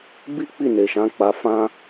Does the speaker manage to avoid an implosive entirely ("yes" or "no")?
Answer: yes